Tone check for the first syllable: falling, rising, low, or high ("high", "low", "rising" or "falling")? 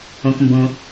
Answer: low